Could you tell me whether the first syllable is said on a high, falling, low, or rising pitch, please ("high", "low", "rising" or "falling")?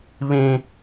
high